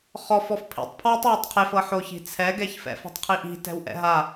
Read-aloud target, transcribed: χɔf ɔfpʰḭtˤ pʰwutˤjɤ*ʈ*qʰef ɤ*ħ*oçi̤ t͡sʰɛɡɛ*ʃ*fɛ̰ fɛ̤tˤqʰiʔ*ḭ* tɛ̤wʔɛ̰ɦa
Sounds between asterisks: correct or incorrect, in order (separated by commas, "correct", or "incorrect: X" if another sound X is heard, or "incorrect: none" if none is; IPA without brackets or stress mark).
incorrect: tˤ, correct, incorrect: ç, incorrect: i̤